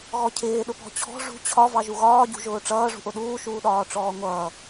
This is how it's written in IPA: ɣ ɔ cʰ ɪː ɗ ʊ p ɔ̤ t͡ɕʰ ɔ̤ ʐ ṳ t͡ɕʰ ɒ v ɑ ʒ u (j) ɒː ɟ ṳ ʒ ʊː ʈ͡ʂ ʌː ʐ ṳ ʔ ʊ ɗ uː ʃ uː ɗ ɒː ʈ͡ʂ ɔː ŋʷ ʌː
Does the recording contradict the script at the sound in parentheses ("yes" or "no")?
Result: yes